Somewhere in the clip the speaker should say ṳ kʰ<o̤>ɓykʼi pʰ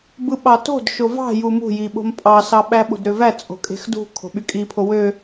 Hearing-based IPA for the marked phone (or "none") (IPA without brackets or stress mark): o̤